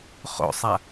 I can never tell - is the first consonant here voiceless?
yes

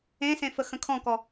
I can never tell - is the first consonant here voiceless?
yes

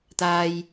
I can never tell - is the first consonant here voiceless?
yes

